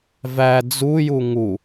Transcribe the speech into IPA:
v æ d͡z u j u ŋ u

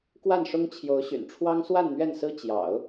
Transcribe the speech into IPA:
k w a˥˩ n ʂ ʊ˥ ŋ t͡ɕʰ j o˧˥ ʊ̯ ɕ y̰˨˩ n ʈ͡ʂʰ w ɑ˥ ŋ s w a˥˧ n n̪ ɥ ɛ˥˩ n s ɹ̩˥ t͡ɕ j ɑ̰˨˩˦ ʊ̯

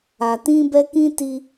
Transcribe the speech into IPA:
a˨ t ĩ˦ b ɛ˦ k ĩ˦ t i˦

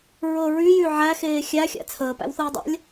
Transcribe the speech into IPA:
ɹ ɤ ɹ y j y ʕ æ x eː xʲ æ xʲ æ̰ t͡sʰ əː p æ̰ w θ ɤː dˤ a̰ lʲ

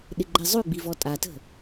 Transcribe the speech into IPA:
ɗ ɪ ɡ͡ǃ ɛ zˤ ʉ ɡ͡b i v ɔ tʼ a t ə̤

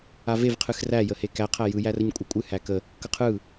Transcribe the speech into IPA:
a v e v qʰ ɨ x r æ j ə h e k æ qʰ æ j ɯ j æ r ə ɲ kʷʼ ɯ kʷʼ ɨ h æ k ə | k ə qʰ ɯ

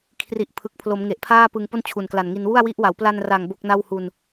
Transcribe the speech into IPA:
kʰ r i˨˩ ʔ pʰ ɯ˨˩ k̚ pʰ l o˩˦ m ŋ e˨˩ ʔ pʰ aː˥˩ p ɯ˧ ŋ p o˥˩ n t͡ɕʰ u˨˩ n k l a˨˩ n ŋ i˧ n w u˥˩ a̯ w i˦˥ ʔ w a˩˦ w p l a˧ n r a˨˩ ŋ b o˥˩ k̚ n a˥˩ w h u˧ n

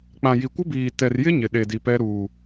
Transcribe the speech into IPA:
k͡p ã˨ j i˨ kʷ ɪ˦ b iː˨ t ɛ˨ r j ɪ˦ ɲ ɪ˨ ɗ e˨ d i˨ p ɛ˦ ɾ uː˨

